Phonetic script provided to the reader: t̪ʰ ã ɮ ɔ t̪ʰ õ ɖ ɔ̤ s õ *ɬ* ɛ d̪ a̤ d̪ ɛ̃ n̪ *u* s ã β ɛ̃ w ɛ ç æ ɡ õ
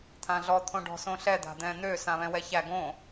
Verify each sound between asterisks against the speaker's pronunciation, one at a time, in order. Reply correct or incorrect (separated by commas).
correct, incorrect